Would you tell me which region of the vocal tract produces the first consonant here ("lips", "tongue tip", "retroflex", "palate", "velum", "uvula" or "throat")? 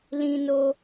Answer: tongue tip